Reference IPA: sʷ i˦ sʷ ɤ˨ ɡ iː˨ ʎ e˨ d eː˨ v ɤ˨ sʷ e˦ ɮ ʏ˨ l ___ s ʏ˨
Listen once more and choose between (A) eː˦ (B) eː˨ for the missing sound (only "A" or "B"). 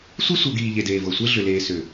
B